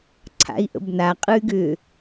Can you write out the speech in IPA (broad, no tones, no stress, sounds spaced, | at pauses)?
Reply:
ǀʰ a̰ i̯ ʔ ə̰ b n a qʼ ɯ y̯ ɡ ʏ